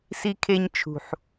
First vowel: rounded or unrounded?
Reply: unrounded